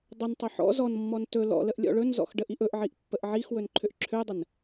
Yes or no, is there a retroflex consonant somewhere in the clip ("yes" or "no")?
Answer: yes